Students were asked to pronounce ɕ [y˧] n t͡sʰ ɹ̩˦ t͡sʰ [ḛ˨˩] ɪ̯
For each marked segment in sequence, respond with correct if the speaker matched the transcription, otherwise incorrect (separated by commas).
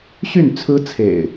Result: incorrect, correct